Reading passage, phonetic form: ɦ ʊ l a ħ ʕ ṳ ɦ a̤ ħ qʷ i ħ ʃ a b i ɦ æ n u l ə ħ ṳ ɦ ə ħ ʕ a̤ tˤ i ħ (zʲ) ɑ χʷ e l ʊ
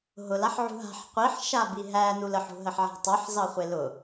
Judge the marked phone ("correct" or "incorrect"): incorrect